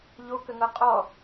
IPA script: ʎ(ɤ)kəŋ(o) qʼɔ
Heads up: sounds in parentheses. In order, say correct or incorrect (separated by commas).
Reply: incorrect, incorrect